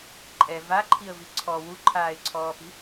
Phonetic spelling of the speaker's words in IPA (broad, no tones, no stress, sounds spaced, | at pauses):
ǃʼ ɛ v a ǃʰ i ə̯ v i ǀʰ ɔ w u ǃʰ aː ɪ̯ ǀʰ ɔː p i̤